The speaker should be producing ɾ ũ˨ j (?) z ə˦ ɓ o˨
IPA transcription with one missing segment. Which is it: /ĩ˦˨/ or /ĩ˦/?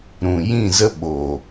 ĩ˦˨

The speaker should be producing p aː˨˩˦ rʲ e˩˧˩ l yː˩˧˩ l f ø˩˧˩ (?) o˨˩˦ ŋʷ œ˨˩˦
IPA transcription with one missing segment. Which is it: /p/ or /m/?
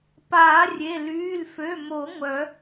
m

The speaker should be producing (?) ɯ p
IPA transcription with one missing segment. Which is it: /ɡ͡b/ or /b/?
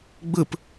ɡ͡b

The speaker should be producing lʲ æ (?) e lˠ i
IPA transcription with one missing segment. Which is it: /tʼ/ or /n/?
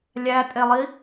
tʼ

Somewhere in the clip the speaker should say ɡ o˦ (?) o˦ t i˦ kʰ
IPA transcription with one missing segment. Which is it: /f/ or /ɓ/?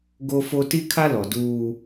f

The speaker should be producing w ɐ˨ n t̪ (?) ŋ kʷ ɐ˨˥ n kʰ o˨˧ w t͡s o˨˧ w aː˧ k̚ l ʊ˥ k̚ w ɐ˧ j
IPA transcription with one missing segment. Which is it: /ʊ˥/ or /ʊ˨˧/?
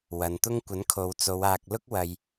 ʊ˥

